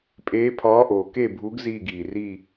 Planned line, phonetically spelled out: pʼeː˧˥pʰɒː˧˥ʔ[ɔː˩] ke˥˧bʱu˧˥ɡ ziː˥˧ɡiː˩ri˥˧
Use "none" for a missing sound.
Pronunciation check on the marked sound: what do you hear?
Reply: oː˩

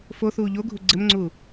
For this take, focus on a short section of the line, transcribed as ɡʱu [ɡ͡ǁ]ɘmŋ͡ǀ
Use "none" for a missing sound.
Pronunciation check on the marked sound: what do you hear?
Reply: ɡ͡ǀ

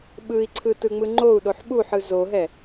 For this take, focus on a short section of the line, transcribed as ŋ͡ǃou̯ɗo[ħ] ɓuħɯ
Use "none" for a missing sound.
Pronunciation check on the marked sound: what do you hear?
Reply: ħ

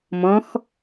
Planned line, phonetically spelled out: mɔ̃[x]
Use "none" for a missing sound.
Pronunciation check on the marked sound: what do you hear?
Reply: x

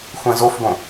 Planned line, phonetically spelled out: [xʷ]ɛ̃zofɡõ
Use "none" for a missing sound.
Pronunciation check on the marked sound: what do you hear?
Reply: xʷ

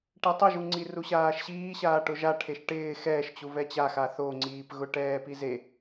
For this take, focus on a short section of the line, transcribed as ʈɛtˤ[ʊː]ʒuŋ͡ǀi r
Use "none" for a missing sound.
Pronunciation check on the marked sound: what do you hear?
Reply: ʊ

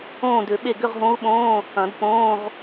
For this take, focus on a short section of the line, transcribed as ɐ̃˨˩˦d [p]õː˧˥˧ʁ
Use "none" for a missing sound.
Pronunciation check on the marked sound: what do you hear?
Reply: p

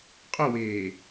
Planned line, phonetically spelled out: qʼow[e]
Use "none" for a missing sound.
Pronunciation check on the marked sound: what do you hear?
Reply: eː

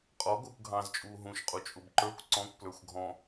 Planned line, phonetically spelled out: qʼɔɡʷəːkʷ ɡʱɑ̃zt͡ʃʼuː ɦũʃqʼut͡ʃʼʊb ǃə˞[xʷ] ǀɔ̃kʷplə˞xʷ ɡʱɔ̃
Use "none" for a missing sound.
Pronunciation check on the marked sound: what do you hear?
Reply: kʷ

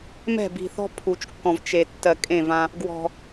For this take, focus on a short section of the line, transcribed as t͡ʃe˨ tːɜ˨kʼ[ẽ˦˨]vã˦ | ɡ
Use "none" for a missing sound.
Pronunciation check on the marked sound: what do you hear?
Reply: ẽ˦˨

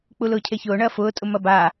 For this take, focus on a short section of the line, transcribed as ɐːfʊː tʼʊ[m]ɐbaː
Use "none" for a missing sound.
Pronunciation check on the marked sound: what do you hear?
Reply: m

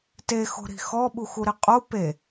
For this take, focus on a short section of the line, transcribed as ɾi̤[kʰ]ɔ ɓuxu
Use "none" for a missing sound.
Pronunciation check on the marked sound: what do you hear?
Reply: x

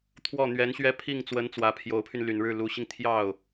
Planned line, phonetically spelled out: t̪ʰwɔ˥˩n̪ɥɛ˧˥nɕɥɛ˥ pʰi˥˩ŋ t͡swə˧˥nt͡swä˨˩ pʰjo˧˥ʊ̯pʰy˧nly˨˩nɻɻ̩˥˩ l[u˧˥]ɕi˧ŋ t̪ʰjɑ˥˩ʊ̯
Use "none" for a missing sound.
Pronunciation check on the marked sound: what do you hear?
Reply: u˧˥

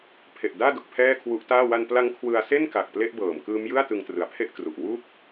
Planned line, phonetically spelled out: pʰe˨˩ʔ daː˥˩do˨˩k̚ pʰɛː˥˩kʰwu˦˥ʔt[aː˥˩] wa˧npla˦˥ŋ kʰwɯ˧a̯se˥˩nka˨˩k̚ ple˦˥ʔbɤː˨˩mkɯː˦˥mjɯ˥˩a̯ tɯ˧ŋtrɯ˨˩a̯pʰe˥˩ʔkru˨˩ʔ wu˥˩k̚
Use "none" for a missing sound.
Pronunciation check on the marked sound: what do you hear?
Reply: aː˥˩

